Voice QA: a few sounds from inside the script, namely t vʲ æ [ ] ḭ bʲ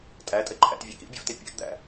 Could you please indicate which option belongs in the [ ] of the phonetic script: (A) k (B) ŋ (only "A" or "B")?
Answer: A